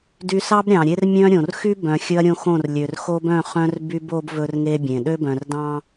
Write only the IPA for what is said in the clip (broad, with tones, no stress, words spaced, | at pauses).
dy˦ sɑ˦bɾʲɑ̃˨ɾʲe˦r mʲœ̃˦ɾʲõ˨r xy˦bœ̃˨ xʲɵ˦ɐ̯ɾʲõ˦xõ˦˨r lʲø˨rxo˦bœ̃˦˨ χœ̃˦rby˦bo˦b vɵ˦rŋe˦bʲẽ˨ ɗø˦bœ̃˨rdɑ̃˦